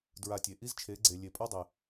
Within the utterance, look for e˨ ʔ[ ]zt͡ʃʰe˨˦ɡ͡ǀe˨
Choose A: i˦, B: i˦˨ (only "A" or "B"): A